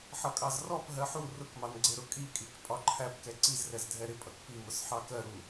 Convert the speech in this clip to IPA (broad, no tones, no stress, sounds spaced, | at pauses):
ħ ʌ kʼ ɑ z r ɔ p ɦ ɜ ħ u r ʊ k m ɑ n ɡ͡ǀ ɪ ɾ ʊ kʼ i kʼ i k pʼ ɒ ǃʰ æ p k ɛ ǀ i z r ɛ z dʱ ɛ ɾ ɪ pʼ ʌ k p i m ʊ s ħ ɑ k ɜ ɾ u